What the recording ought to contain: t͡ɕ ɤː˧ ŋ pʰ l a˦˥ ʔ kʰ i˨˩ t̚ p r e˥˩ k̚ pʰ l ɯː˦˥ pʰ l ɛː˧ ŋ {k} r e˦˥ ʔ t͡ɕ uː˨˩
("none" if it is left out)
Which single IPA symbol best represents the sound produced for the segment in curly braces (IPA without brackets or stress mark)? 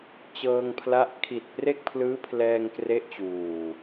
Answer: k